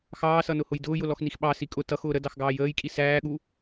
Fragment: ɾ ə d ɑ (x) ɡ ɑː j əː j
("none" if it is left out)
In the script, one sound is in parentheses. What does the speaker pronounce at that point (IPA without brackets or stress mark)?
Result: x